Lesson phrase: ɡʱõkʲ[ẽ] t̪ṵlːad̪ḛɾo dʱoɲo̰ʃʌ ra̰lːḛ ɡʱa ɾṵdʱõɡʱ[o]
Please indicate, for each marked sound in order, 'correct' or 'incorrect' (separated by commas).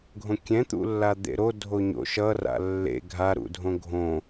incorrect, incorrect